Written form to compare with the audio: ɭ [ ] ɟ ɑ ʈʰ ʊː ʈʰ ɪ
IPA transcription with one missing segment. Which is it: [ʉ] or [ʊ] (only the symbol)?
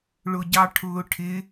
ʊ